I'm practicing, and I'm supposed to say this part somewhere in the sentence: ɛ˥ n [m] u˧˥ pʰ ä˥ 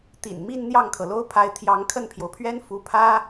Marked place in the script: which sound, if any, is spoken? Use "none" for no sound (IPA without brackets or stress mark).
f